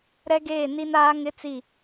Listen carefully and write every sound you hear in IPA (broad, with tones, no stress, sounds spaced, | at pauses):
ɾ ɛ˦ ɡ eː˦˨ n i˦ n aː˦ ŋ ɪ˦ t͡s i˦˨